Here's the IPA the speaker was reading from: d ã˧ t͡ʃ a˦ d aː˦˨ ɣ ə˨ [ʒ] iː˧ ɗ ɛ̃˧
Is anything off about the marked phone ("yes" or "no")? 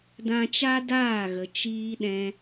yes